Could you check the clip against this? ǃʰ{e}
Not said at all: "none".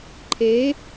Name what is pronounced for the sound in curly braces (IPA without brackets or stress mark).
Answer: e